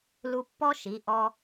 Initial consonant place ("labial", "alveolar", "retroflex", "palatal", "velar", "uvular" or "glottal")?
alveolar